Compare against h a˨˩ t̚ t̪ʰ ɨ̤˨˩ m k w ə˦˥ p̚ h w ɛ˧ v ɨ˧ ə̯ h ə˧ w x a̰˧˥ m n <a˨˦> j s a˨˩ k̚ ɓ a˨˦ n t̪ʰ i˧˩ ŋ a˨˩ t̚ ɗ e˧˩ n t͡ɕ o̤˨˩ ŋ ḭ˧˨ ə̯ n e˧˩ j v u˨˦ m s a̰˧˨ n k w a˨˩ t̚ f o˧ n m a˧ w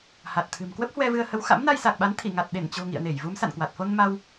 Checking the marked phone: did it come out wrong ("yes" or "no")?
yes